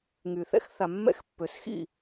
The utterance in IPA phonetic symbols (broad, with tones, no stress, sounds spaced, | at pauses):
ŋ y˨ θ ɛ̰˦ x θ a˨ mː ɛ̰˦ x pː ø˨ s x ḭ˦˨